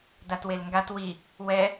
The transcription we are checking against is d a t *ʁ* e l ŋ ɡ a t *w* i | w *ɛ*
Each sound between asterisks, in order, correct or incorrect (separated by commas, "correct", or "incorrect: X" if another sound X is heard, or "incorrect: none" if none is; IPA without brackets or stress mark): incorrect: w, correct, correct